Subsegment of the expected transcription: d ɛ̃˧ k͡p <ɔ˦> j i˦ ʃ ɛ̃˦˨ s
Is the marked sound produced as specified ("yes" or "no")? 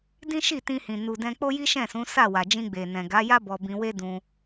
no